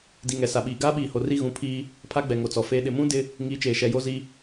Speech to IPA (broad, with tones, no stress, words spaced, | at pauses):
di˨ŋɛ˨sa˨ɓiː˨ ɡaː˦ɓiː˨ho˨ ri˦ɣũ˨˦pʰiː˦ | pʰa˦ɡ͡bɛ˨ŋo˨t͡sɔ˨ feː˨ɗɪ˨mũ˦ dɪ˦ | ŋi˨˦ t͡ʃeː˨ʃɛ˨ jo˦zi˦